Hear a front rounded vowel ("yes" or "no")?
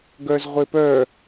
yes